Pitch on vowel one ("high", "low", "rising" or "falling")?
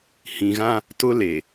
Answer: low